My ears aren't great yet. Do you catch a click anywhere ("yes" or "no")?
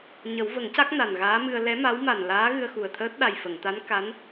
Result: no